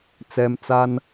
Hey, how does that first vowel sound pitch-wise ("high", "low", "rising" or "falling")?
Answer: low